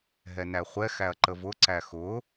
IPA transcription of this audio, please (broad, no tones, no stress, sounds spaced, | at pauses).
ɦ ɛ n æ χʷ ɛ x æ ɐ̯ ǃ ə v ʊ ǀ æ x ʊ